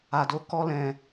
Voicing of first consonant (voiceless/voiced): voiced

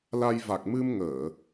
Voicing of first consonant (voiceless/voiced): voiced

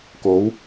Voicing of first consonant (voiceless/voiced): voiceless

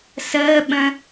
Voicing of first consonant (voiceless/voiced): voiceless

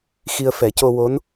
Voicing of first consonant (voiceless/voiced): voiceless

